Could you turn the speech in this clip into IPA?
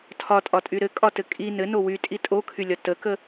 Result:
tʰɒtʼɒtʼy ɾɘkʼɒtɘ kʼi nɘno wytʼi tʼokʰylʲɒ təkə

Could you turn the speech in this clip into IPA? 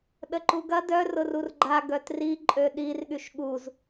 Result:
ɗəǃuɡɐ dœ rʊrurɡ͡ǃa ɡœtri ǃʼøɗirɠyʃ ɠuz

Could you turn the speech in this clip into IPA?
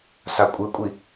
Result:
sakʷʼɨkʷʼi

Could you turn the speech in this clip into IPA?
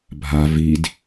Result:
bʱa vid

